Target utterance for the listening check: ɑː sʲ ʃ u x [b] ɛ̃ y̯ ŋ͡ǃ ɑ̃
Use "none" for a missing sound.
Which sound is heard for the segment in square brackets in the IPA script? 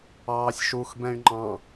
b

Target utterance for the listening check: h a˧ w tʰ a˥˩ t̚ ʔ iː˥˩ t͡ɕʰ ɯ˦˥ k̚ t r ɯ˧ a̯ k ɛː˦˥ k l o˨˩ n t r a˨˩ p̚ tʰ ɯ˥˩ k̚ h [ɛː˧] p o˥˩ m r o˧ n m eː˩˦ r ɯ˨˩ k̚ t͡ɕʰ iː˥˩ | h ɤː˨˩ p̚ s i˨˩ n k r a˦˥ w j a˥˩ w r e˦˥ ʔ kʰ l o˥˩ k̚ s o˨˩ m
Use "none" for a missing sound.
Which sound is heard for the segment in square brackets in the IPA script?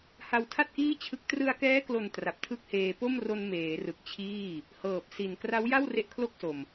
eː˧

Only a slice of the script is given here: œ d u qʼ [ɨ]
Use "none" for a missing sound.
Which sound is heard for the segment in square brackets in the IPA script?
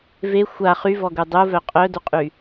y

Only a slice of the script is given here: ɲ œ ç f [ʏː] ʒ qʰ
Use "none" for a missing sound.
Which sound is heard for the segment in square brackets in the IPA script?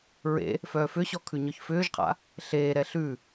ʏː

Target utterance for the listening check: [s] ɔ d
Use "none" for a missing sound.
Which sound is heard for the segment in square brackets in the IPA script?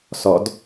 s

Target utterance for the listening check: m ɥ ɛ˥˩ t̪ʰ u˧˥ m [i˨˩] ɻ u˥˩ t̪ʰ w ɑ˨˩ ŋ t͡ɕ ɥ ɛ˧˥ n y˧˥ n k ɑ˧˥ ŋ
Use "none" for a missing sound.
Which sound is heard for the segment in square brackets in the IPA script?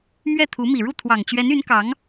i˨˩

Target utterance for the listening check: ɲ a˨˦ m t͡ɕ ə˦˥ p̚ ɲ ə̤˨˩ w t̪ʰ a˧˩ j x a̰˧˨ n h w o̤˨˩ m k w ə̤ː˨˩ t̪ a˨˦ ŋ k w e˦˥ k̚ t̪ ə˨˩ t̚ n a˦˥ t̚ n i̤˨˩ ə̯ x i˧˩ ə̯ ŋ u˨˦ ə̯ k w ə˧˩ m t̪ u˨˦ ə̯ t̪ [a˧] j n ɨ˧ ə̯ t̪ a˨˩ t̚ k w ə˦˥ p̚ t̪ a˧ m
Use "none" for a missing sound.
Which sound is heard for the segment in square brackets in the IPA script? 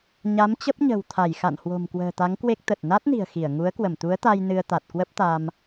a˧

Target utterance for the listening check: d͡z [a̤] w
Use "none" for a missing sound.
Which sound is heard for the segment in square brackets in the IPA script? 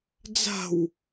a̤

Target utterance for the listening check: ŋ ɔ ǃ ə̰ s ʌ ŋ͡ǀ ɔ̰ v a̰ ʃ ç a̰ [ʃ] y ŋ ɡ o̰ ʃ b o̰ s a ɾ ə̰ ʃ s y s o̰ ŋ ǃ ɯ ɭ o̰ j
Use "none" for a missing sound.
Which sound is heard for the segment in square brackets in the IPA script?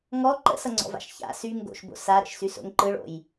s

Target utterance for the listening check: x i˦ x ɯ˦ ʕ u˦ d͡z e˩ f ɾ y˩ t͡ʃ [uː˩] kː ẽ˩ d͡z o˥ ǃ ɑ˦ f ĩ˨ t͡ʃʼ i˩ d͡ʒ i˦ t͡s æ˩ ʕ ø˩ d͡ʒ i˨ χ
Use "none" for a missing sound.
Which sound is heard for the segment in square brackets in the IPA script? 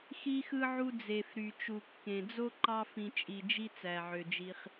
u˩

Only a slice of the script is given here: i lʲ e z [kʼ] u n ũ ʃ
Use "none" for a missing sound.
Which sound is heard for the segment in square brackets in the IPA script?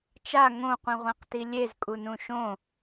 kʼ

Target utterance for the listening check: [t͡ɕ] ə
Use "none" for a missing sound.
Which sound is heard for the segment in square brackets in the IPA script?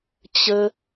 t͡ɕ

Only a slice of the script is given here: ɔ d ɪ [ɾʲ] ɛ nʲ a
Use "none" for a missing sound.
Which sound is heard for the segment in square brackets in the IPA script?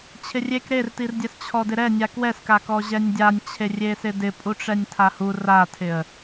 ɾ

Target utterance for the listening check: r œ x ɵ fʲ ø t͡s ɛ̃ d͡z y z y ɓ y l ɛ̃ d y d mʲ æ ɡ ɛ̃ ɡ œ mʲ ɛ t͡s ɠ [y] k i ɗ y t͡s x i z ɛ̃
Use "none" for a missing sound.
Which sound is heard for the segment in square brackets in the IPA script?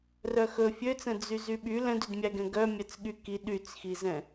y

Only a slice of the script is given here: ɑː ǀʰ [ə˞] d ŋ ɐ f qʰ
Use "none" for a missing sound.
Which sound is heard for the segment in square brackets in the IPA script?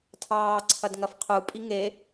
ɐ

